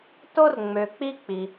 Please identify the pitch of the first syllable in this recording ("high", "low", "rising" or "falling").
high